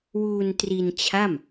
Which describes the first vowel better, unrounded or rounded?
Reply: rounded